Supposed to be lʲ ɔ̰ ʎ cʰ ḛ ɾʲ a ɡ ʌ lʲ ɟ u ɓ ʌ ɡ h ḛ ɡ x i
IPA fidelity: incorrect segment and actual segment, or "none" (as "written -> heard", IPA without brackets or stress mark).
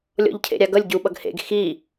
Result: none